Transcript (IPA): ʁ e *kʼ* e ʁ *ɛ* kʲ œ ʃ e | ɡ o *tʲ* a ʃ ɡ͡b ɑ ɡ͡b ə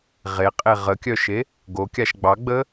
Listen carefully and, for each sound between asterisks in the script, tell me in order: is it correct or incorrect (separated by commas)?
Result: incorrect, incorrect, incorrect